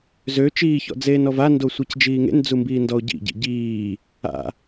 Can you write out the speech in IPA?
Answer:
z ø t͡ʃ iː ç ɔ̰ d͡z eː n ɔ v a n d o sʷ i c d͡ʒ iː ŋ ḛ n d͡z u m b iː n d ɔ o̯ ɟ ḭ ɟ ḭ ɟ iː | a̰

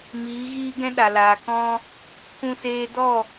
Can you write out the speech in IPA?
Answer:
m iː˨˦ ɣ iː˦ ɡ ɛ̃˦ ɗ a˨ l aː˨ k ɔ̃˦ | k ũ˧ s eː˧ d ɔ˦˨

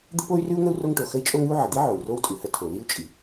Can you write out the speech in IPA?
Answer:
d̪ ə˥ p o˥ y̯ r ʉ˥ u̯ ŋ ə˥ u̯ r o˥ ŋ ʈ o˩ x ə˥ i̯ t͡ʃʼ o˥ ŋ ʉ˥ u̯ ʕ ə˩ d̪ i˥ ʕ o˩ u̯ r o˥ w tʼ ʉ˩ h ə˥ tʰ o˩ l i˥ u̯ t͡ʃʼ i˩

